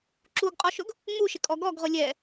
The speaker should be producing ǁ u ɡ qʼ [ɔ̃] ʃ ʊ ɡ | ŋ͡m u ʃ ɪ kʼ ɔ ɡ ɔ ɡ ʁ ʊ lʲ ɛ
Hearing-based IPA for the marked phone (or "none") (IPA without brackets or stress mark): ɔ